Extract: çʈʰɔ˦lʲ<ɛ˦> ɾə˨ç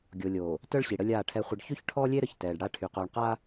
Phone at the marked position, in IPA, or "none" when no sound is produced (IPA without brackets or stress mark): e˦